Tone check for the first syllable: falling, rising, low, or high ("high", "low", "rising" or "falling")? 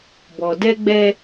low